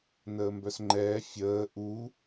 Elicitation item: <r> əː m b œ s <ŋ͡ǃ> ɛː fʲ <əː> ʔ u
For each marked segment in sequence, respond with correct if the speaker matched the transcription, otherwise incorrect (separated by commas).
incorrect, correct, correct